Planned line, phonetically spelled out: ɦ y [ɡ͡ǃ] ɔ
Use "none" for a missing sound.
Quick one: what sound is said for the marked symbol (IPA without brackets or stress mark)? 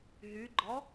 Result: ɡ͡ǃ